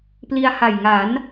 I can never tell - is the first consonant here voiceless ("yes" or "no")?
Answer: yes